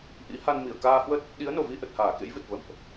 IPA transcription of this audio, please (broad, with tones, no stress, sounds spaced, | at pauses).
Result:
ʔ ḭ˧˥ h a˧ n m i˧˩ ə̯ k aː˧ h w ə˦˥ t̚ | ɗ i˨˦ ə̯ n o˨˩ v i˧ ʔ ə˨˩ t̚ h aː˧˩ k ḛ˧˥ j v ɨ˨˩ t̚ v ə̰˧˨ m ʔ